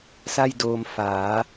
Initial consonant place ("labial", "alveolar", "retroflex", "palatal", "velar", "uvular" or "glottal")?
alveolar